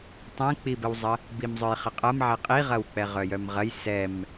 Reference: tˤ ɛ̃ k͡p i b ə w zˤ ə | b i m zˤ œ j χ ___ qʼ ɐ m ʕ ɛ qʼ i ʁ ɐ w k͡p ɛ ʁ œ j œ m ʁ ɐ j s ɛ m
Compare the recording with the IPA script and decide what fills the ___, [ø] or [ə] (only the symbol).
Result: ə